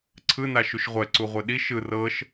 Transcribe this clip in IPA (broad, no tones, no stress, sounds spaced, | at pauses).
ǀʰ ɯ n a ʃ u ʃ ʁʷ ɛ ǀ u ʁʷ e ɗ i ʃ ɯ r ɤ ʃ